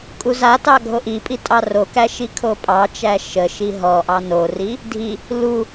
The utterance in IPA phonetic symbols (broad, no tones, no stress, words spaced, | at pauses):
kʼuzatɑ ɡʱoʔipʼi tʼɑrokæ ʃikʰopʼɑt͡ʃæ ʃəʃi ɦɔʔɑ nori | dʱi | lu